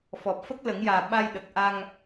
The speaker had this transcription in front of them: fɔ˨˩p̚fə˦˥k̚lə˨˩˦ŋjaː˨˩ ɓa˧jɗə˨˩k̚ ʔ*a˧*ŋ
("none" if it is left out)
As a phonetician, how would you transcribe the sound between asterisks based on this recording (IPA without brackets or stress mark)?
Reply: a˧